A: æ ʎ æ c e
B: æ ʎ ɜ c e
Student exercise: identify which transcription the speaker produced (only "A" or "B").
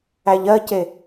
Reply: B